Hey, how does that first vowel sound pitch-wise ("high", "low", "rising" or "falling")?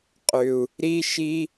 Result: low